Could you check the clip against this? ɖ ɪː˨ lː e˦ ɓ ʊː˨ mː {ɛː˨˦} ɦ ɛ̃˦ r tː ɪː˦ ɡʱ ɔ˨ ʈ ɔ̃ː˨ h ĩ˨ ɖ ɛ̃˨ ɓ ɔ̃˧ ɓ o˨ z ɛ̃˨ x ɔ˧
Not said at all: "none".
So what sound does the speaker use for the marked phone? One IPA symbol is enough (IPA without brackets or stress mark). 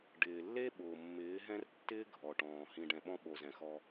ɪː˨˦